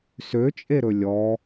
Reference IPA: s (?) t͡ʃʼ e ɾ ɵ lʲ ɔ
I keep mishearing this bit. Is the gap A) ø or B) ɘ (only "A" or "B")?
A